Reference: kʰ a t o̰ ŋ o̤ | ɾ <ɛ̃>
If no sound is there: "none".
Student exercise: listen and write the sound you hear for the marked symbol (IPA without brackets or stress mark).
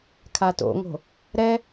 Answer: ɛ